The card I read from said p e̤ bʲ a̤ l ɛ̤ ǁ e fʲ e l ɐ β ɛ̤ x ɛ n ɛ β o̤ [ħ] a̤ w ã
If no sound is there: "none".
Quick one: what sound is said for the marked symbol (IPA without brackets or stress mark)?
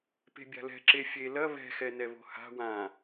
h